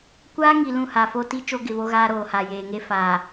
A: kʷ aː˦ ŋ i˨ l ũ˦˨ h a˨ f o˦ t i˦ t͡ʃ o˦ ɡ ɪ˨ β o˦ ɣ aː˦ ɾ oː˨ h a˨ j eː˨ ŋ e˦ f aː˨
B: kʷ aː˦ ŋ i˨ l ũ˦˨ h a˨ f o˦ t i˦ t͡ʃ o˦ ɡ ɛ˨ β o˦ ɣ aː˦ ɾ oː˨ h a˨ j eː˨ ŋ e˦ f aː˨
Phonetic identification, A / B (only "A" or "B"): A